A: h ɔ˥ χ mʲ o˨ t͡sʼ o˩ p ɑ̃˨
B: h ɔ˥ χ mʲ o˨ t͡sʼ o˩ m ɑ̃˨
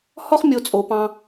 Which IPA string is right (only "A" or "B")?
A